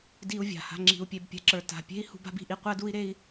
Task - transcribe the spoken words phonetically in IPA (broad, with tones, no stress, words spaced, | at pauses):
di˧u̯ vʲa̤˨ha̤˧ ŋ͡ǁi̤˧u̯pʲe˧bpʲa̤˧ǁə˞˧ ta̤˧ pʲe̤˦i̯hṳ˧b a̤˦bi̤˧ʔi˧ qʷɜ˦du˦i̯ɾe˦i̯